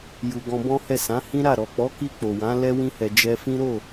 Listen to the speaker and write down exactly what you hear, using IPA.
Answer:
j u˨ ɡ ɔ̃˧ b ɔ̃˦ h ɛ˦˨ s ã˨˦ h ĩ˦ ɾ a˦˨ ɾ ɔ˨ k͡p ɔ˨˦ k i˧ k͡p o˨ w ã˨˦ l ɛ˧ w ĩ˧ h ɛ˨ d͡ʒ ɛ˧ f ĩ˦ ɾ o˦˨

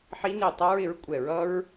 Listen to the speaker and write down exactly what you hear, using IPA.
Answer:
ħ i˦˥ n i˦˨ tˤ ʌ˦˥ ɹ ɪ˩˥ ɹ kʷʼ ɛ˧˩˧ ɹ ʌ˦˥ ɹ

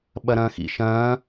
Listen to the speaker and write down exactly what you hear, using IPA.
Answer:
ɓ ɐ ɾ ɐ̃ː x ḭ ʃ ɐ̃ː

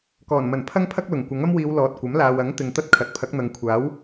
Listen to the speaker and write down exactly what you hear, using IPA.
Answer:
k ɔː˨˩ n m ɐ˨˩ n pʰ ɐ˥ ŋ pʰ ɐ˥ k̚ l ʊ˨˩ ŋ kʷ ɐ˨˥ ŋ ɐ˥ m w iː˨˧ w l ɔː˨ t̚ kʷ ɐ˨˥ m l aː˨ w ɐ˨˥ ŋ t̪ ɪ˨ ŋ t̪ ɐ˥ t̚ kʰ ɐ˨˥ t̚ pʰ ɐ˨˥ k̚ n̪ ɐ˨˧ ŋ kʷʰ aː˨˥ w

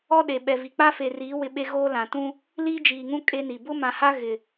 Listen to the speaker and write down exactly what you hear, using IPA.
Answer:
ɔ˦ ɗ e˨ ɓ ɛ˨ v i˨ k͡p a˦ f e˨ r iː˨˦ w ɪ˦ ɓ e˦ ɣ oː˦ l ã˨ t ũ˦ | l iː˦ d͡ʒ iː˨ ŋ ũ˦ kʼ e˦ n i˨ b ʊ˦ m ã˨ h a˦ ɣ ɪ˨

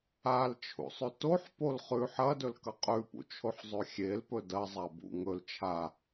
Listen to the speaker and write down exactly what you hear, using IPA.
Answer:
a l t͡ʃʰ ṵ sˤ ʉ t o ħ p o l χ ʉ ħ ɐ d ɵ l k ɐ qʼ ʉ p ṵ t͡ʃʰ o ħ zˤ ʉ xʲ e l p ɵ d ɐ zˤ a b ṵ ŋ ɵ l t͡ʃʰ a

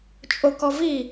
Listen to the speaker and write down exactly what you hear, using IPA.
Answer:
t͡ʃʼ o k ɔ v i

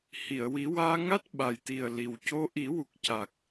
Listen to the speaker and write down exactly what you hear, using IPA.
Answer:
h i˨˩˨ ə̯ w i˨˩˦ w aː˧ ŋ a˦˥ t̚ ɓ a˨˩ j t̪ i˨˩ ə̯ l i˨˩ w c o˧ ʔ i˨˩˦ w u˨˩ k̚ c a˨˩ k̚

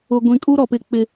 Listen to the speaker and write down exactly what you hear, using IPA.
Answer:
ʊ˨ ɡʷ ĩ˨ kʼ u˦ ɾ ɔ˨ p ɪ˦ k͡p ɪ˦

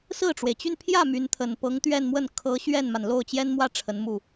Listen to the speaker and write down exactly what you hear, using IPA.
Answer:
s ɹ̩˥˩ ʈ͡ʂ w e˩ ɪ̯ t͡ɕ y˥˧ n pʰ j ä˥˩ m y˧˥ n t̪ʰ ə˨˩ n p ɤ˧˥ ŋ t̪ ɥ ɛ˥˧ n m w ə˥˩ n kʰ ɤ˧˥ ɕ ɥ ɛ˥˩ n m a˩ n l o˥˩ ʊ̯ t͡ɕ j ɛ˥ n m w ä˥˩ ʈ͡ʂʰ ə˧˥ n m u˥˩

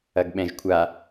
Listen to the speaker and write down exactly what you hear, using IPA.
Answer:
ɐ ɡ ɓ ɛ̃ ʒ kʷʰ a

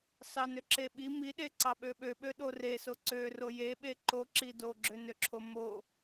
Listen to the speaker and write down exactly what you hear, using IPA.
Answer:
s ɑ n ø ǁ e ɓ i m i ɗ e ǀ ɑ ɓ ø ɓ ø ɓ ø ɗ o r e s o ǀ ø r o j e ɓ e ǃ o ǁ i d o ɡ͡ǁ ø n ø ǁʰ o m o

